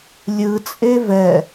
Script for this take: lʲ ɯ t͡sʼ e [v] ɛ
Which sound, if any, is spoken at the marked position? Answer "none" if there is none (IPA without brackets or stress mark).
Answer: v